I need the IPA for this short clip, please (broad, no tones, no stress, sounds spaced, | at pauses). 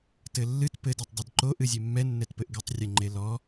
t ɘ lː ɨ t p ɘ d ɛ tˤ dˤ ɐ d ǃ o ʔ ɨ zʲ e mː ɛ nː ɛ t p ɘ ʔ ɡ ɨ tˤ rʲ ɘ ŋ͡ǃ e l ɔ